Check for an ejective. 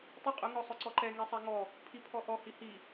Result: present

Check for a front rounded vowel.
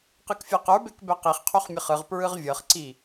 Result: absent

